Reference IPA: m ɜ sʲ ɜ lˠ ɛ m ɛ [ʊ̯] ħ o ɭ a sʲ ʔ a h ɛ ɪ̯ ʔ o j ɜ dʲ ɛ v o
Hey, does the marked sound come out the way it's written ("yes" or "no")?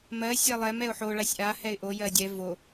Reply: yes